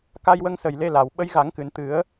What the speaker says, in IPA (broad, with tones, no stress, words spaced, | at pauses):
ka˧jwə˧ŋsə˨˩j le˧la˨˩w ɓə˧˥jɣa˨˩˦ŋkɨ˨˩˨n t̪ɨ˨˩˦ə̯